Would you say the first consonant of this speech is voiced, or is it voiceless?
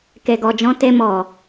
voiceless